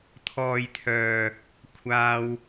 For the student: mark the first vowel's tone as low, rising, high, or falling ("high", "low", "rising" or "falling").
low